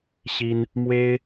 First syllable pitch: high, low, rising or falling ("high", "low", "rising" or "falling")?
high